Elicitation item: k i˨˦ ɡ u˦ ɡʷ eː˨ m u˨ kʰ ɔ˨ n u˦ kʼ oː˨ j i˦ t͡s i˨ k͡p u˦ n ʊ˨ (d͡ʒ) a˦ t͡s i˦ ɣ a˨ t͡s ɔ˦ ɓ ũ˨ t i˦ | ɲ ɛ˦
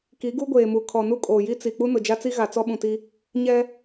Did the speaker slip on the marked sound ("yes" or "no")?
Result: no